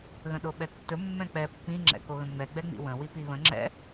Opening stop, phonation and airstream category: implosive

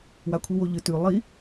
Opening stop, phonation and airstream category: aspirated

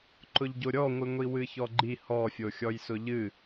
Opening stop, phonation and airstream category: click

